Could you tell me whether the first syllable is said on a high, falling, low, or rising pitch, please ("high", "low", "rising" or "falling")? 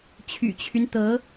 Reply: low